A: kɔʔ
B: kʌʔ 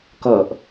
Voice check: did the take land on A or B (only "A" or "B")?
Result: B